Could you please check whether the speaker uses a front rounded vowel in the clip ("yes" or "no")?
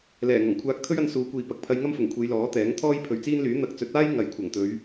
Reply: yes